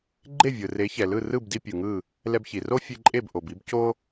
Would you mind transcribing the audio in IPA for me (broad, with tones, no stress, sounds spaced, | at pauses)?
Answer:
ɡ͡ǃ e˥˩ vʲ ɯ˩ r e˩˥ ç ɛ˩ l ɯ˥˩ r ɯ˥˩ b d i˧ pʲ ɯ˩ ŋ ɯ˥˩ | l ɛ˧ b ç i˩ r o˥ fʲ e˧ ǃʼ e˥˩ b ʔ o˩ b i˥ b c o˥